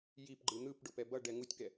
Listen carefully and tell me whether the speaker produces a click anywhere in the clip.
yes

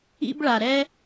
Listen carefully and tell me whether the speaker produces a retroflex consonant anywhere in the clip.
yes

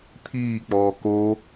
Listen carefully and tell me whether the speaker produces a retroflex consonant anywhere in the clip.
no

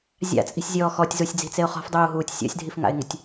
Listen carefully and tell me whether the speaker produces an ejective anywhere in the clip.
yes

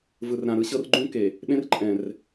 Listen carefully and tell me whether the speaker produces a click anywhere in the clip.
yes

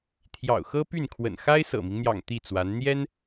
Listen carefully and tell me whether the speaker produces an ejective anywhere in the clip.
no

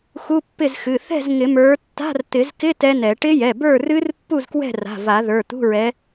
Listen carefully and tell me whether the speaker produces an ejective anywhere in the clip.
no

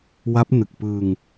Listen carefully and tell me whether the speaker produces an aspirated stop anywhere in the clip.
no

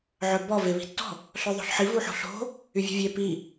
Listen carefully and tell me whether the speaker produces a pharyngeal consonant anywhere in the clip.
yes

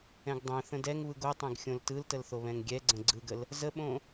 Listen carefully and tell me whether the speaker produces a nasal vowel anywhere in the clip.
yes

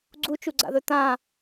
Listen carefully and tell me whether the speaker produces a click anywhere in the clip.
yes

